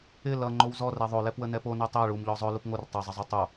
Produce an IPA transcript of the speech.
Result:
ɪ lʌ ŋ͡ǃowzɔrɛ ðˤolɛpwə nɛpo nɛtˤɛ ɭumʎɔ zˤɵ lupŋor tˤʌzˤəzˤo tˤo

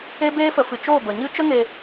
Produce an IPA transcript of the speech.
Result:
e˦beː˦fə˧ fɨ˧ t͡ʃoː˦˨bə˨ɲɨ˦ t͡ʃə˦ŋe˧

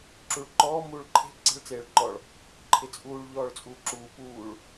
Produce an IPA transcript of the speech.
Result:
ǁuɭǃɔː muːɭǃʰe̤ ǀe̤ɭt͡seːɭǃɔɭ | ǃʰɪt͡sʼuːɭ ʎɔːɭt͡sʼuːǁuː puːɭ

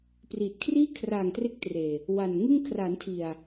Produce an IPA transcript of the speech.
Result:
priː˨˩t̚kʰriː˥˩ kʰraː˨˩ŋ tre˥˩k̚treː˨˩ | wa˨˩nŋɯ˥˩ŋ kʰra˩˦ntʰi˨˩a̯

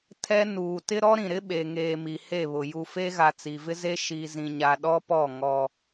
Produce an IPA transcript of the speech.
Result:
tʰɛ˦ nuː˨tɪ˦ ɾɔ˦ɾĩ˨ɾɪ˦ ɓe˨ŋeː˨ mi˨he˦˨βʊ˨ ju˨fe˦ɣa˨ t͡si˨vɪ˦ze˦ ʃi˨zĩ˨ɲa˨ ɗɔ˦pɔ˦˨ ŋɔ˦

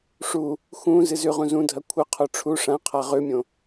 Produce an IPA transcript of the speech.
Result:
ʂu | xũ zɨzʉʁũ zũdʱɐ kʷʰɨqʰo ʈ͡ʂʰu ʂãqʰa ʁʉmʲõ

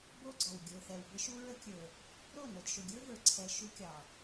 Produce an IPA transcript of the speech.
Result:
bo˦ɡ͡ǀɔ˨w ɡʲə˞˨θɛ˨w bə˦ʃu˦ɹə˦kʲə˞˨ | ɾo˦˨nɤ˨d ʃʊ˨ɡʲə˞˦və˞˨ǀʰɛ˨ ʃu˦kʲɑ˨

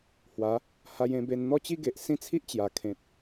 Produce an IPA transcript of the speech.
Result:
hwa˨˦ | ha˧jẽ˧be˧n n̪ɔ˦t͡ɕi˦ɡe˨ʔ sĩ˥˧t͡sʰi˦ʔt͡ɕja˨˩ kʰẽ˨t̚

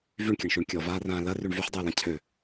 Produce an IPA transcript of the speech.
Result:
vyɳkʲɐɳʃyɳ kʲɔvaːrãː lɐryɳ vyħdˤøə̯lã cʰø

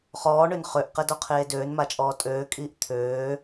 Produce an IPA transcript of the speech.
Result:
χɔːɳøn χøʔqɛdɔqʰeː døːnmat͡ʃʼɔː tʼøːkʼiːʔ t̪ʰøː

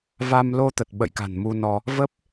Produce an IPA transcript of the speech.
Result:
va˧m lo˧t̪ə˨˩t̚ ɓə̰˧˨jka̤˨˩n mu˧nɔ˧ | və˦˥p̚

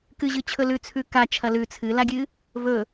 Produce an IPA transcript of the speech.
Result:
kɨʑɨ t͡ɕʰɵlʉ t͡sʰʉka t͡ʃʰɐlʉ t͡sʰɨlaɡʲɨ | vɵ

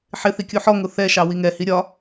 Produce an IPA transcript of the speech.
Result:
ħɪθi kʲuħɔŋʊ θɛʃɑ wiŋɛhi ɾʲɒ

